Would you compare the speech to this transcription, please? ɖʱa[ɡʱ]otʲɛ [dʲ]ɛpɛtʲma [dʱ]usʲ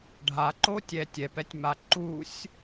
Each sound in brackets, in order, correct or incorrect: incorrect, incorrect, incorrect

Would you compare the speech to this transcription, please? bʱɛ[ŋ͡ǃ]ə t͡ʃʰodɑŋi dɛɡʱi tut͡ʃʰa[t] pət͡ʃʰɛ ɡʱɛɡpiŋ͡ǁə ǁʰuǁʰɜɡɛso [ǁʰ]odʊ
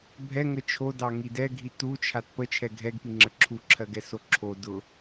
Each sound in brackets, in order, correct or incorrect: incorrect, correct, correct

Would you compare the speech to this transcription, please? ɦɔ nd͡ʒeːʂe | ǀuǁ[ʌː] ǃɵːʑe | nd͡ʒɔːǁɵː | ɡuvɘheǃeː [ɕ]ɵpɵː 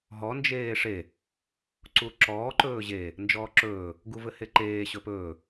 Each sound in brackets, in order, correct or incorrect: incorrect, correct

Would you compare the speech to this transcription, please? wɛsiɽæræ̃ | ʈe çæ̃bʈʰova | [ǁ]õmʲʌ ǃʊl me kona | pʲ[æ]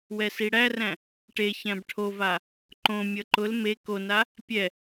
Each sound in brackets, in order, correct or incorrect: incorrect, incorrect

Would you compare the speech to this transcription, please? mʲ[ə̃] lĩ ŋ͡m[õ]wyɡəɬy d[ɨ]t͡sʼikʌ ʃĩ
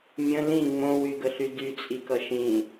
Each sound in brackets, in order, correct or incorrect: correct, correct, incorrect

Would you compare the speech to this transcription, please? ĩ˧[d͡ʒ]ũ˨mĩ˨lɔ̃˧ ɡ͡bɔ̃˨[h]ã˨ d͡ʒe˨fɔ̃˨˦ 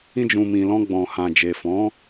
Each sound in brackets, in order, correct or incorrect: correct, correct

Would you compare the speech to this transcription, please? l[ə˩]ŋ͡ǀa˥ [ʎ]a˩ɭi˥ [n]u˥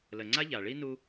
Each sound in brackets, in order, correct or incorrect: correct, correct, correct

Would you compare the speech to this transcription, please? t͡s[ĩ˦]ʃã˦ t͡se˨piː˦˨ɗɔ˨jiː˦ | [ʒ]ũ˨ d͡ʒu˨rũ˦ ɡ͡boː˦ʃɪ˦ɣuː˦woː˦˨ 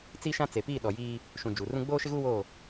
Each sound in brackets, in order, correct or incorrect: incorrect, incorrect

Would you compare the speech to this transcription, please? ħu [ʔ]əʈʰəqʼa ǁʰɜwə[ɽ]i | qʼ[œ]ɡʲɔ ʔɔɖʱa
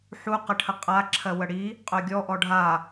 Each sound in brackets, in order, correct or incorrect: incorrect, correct, correct

